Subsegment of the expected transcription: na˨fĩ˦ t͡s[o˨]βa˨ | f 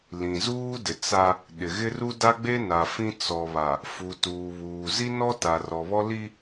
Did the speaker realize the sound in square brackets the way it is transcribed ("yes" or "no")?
no